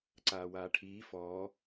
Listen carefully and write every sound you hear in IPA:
ǀ aː w aː ʈʰ iː f ɔː

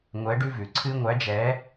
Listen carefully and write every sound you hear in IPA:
ŋʷ ɛ˨˥ ɖ ʉ˦ v ʉ˩ ǀʰ ɨ˦ ŋʷ æ˨˥ d͡ʒ ɛ˨˥

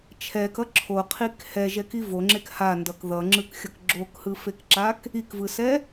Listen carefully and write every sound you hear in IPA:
t͡ʃʰ ɛ k ʌ ǁʰ o qʰ i k h ɛ ʒ ɛ k i v o ŋ͡ǁ e k h a n d ʌ k ð ʌ ŋ͡ǁ ɯ k xʲ ʌ k ɡ͡ǁ o k h ɯ f e k ǁ a k | i k v ɯ s ɛ

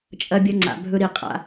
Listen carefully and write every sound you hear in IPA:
t͡ʃʼ ɐ˦ bʲ ɐ˦ ŋ͡ǀ a̰˧ bʱ ɵ˦ ɾ i˧ qʼ a̰˦

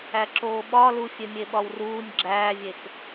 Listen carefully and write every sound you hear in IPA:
æ ǁ oː ɓ ɒ l u fʲ e mʲ e ɓ ɒ w r uː nʲ ɡ͡ǁ æː vʲ e k

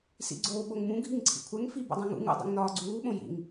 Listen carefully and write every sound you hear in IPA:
s ḭ ɡ͡ǀ oː ɓ o ŋ m ũ ɡʱ i ŋ ǀʰ ḭ kʷʰ ɛ ŋ f i b ṵ dˤ õ ŋ ṵ ŋ ṵ dˤ ḭ ŋ n ɒː ɡ͡ǀ uː ɓ õ j ḭ ŋ

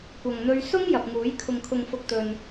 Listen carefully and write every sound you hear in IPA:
kʷ ɐ˨ ŋ n̪ ɵ˧ ɥ s ʊ˥ ŋ j ɐ˨ p̚ ŋ uː˨˥ j kʰ ʊ˨ ŋ kʰ ʊ˨ ŋ f ʊ˨ k̚ t̪ ɵ˨ n

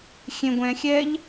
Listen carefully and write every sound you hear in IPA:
xʲ ẽ ɡʷ ɛ̃ xʲ ɛ ʎ

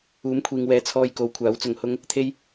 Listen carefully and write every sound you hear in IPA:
uː˨˥ m kʷʰ iː˨ ŋ w ɛː˨˥ t͡sʰ ɔː˧ j k o˨˧ w kʷʰ aː˨˥ w t͡s ʊ˧ ŋ h ʊ˥ ŋ | t̪ʰ e˥ j

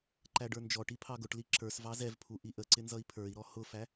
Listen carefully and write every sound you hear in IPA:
ǃ æ ɖ ə˞ n d͡ʒ ɔ ʈ i pʰ ɑ ɡ ʊ ʈ l i ǁ ə˞ s v ɑ z ɛ v pʰ u ʔ i ʔ ə ǀ ɪ n z ʌ i̯ pʰ ə˞ i̯ ɾ ɔ h ʊ f æ

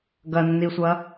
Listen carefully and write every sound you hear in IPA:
ɡ ɐ nː i sʷ ɐ

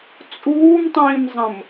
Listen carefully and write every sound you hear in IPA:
t͡sʼ uː m tˤ ĩː m zˤ ə̃ m

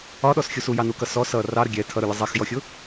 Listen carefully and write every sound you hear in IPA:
ɒ ɗ ɔ s xʲ u s u j ɑ n u k ʌ s ɔ s ʌ r ɑ ɾ ə ɡʲ ɛ tʰ ʌ ɾ u lʲ ʌ zˤ ɛ x j ɔ xʲ ʊ

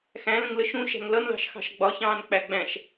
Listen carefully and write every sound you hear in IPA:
x æ̃ l ə̃ ŋ l ə ʃ ũ ʃ æ̤ ŋ l ʌ n l ɑ̤ ʃ x ɑ̤ ʃ ɡ͡b ɒ ç ɑ̃ː n k͡p æ ɡ͡b æ̃ ʃ

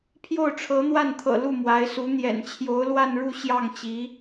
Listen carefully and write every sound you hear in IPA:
pʰ j o˥˩ ʊ̯ ʈ͡ʂʰ ɤ˧˥ n̪ w a˥˩ n t̪ʰ ɤ̰˨˩ l u˥˩ m w a˧˥ ɪ̯ s u˧˥ n̪ j ɛ̰˨˩ n t͡ɕʰ j o˧˥ ʊ̯ l w a˥˧ n ɻ u˥˧ ɕ j ɑ˥˩ ŋ t͡ɕ i˧˥

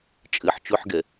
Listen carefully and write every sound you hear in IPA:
t͡ʃʼ ɘ ħ t͡ʃ ɵ ħ ɡ ɛ

